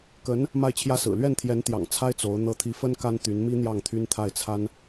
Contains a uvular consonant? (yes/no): no